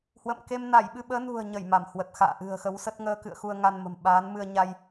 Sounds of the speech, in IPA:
h w ə̰˧˨ m k e˧ m n a˧˩ j ɓ ɨ˧ ɓ əː˨˦ n ṳ˨˩ ə̯ ɲ ə˧˩ j m a˧˩ m h w ə˨˩ t̚ x a̰ː˧˨ ʔ ɨ̤˨˩ ə̯ x ə˨˦ w s ə˦˥ t̚ ŋ əː˧ k ɨ̰˧˨ ə̯ x u˧ ə̯ ŋ a˧ n m ə̤˨˩ m ɓ aː˨˦ n m ɨ˧ ə̯ ɲ a˧ j

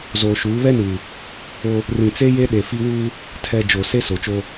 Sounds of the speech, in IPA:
z oː˨ ʃ uː˨˦ β ɛ˦ n uː˨ | o˦ | r ĩ˨ t͡s e˦ j e˦ ɗ e˨ f i˦ w uː˦ | tʰ ɛ˨ d͡ʒ o˨ s e˦ s o˨ t͡ʃ o˦

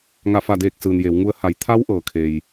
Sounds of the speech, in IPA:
ŋ a˧˩ f a˧˩ d eː˧˩ k̚ s ɯː˩ n j e˩˧ w ŋ u˧ ə̯ h a˩˧ j t̪ʰ a˧˥ w ʔ ɤː˩ kʰ e˩ j

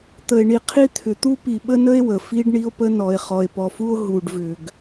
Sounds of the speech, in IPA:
t̪ ə˨ e̯ ɳ i˨ qʰ i˦ t̪ʰ ʏ˨ t̪ u˦ p i˨ ɓ ə˦ n ə˦ e̯ w ə˨ f i˦ ɖ ɳ i˦ o̯ p ə˦ n ɔ˨ e̯ χ ɔ˨ e̯ p ɔ˨ f u˦ o̯ ɦ u˨ ɖ v ʏ˨ ɡ

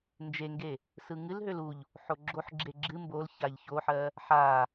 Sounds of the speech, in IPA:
n d͡ʒ e ŋ ɡ e | s ɯ ŋ ɨ l ɦ ø l u ʎ | ħ o ɡ͡ǁ o ħ ɡ͡ǁ e ɡ͡ǁ ɨ m b o l ç a ʎ ç o ħ ɜ | ħ a

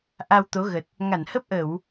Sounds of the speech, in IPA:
ʔ a˧ w t̪ o˨˦ ɣ ə˨˩ t̚ | ŋ a˧˩ n h ə˦˥ p̚ ʔ ə˧˩˨ w

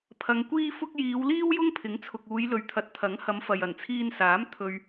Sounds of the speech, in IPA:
pʰ ɐ˨˧ ŋ kʷ iː˥ f ʊ˥ k̚ j iː˨˧ w l iː˥ w j ʊ˥ ŋ pʰ ɪ˨˥ ŋ t͡sʰ ʊ˨ k̚ uː˨˧ j l ɵ˨ ɥ t̪ʰ ɐ˨˥ t̚ t̪ʰ ɐ˨˥ ŋ h ɐ˨˧ m f ɐ˨ j ɐ˨˩ n t͡sʰ iː˧ n s aː˨˥ m t̪ʰ ɵ˧ ɥ

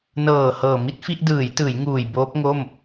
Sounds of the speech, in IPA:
n ɤː˨˩ h ɤː˨˩ m i˥˩ t̚ f i˥˩ ʔ d ɯː˩˦ j t ɯː˩˦ j ŋ uː˨˩ j b oː˦˥ p̚ ŋ o˥˩ m

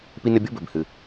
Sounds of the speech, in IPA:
p i˦ n ɘ˦ bʲ o˥ b ɘ˨ b h ɨ˨

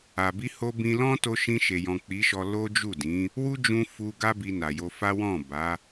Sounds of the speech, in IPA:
a˨ b i˧ h o˧ b ĩ˧ l ɔ̃˦ t o˧ ʃ ĩ˧ ʃ e˨ j ɔ̃˨ k͡p i˨˦ ʃ ɔ˧ l o˦ d͡ʒ u˦˨ d ĩ˨˦ | w u˦ d͡ʒ ũ˧ f u˧ ɡ a˦ b i˧ n a˨ j o˧ f a˦ w ɔ̃˦˨ b a˨˦

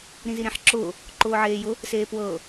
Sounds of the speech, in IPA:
ɾ ĩ z i ɾ ẽ ħ ǁ ʊː | ǃ ʊː ʕ eː j ʊ | s eː p w ɤː

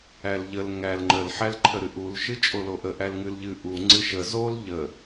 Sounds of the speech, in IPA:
æ l ʎ ə l ŋ æ l ŋ͡ǃ ə l ħ æ l ǃʰ ə ɾ ɨ ʔ u l ʃ ɨ t͡ʃʼ o l o ʔ ə ʔ æ l ŋ ɨ l ʎ ɨ ʔ u ŋ͡ǀ ɨ ʃ ə z o l ʎ ə

